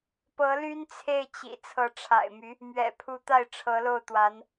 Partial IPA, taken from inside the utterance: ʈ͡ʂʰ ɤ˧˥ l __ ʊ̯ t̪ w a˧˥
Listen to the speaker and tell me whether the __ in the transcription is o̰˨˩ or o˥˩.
o˥˩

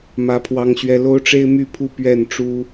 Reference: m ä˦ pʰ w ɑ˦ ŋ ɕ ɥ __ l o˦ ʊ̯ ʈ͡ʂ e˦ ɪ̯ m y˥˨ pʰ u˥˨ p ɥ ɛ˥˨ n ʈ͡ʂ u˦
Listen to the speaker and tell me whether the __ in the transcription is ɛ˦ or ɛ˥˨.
ɛ˦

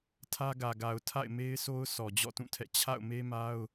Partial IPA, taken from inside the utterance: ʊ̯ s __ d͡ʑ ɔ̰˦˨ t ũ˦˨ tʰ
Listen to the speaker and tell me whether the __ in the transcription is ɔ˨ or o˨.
ɔ˨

